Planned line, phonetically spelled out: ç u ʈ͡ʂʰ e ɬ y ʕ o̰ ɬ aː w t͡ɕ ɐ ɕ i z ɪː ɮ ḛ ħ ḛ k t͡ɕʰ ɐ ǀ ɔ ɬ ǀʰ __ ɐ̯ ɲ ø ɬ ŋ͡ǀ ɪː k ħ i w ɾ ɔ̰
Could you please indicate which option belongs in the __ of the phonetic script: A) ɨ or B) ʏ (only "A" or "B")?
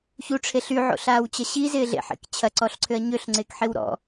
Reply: B